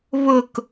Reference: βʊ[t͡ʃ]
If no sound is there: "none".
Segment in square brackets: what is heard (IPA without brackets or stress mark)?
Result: k